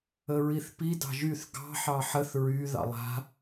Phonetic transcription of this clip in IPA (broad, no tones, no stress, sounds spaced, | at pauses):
ə ɹ i θ p i d ɑ̤ ʒ y θ ɡ ɑ̤ ħ ɑ ħ ə θ ɹ y ð ɑ̰ lˠ a̤